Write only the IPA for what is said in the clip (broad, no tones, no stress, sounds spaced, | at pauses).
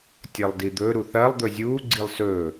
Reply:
tʲ ɐ lˠ d i d̪ ɵ ɾ u θ ɐ lˠ d̪ ɵ zʲ uː ɡ͡ǀ i lˠ s ɵː